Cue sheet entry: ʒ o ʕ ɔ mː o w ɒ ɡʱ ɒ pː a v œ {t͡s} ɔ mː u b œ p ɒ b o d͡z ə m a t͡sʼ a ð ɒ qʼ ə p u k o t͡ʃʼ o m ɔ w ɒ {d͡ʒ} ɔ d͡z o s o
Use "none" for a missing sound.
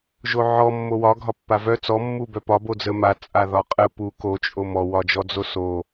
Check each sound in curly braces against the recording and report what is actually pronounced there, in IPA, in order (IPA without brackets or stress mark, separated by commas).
t͡s, d͡ʒ